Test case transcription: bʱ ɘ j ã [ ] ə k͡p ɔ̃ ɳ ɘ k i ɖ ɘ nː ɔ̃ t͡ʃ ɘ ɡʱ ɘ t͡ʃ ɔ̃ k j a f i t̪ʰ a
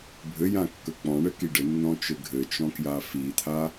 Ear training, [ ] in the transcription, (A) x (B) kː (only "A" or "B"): B